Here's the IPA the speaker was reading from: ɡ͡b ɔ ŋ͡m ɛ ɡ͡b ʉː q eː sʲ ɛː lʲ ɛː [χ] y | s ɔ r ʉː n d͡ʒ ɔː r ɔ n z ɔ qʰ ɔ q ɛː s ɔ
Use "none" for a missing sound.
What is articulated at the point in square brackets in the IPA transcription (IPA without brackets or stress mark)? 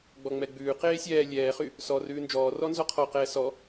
χ